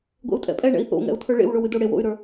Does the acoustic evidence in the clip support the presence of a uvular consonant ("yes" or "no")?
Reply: no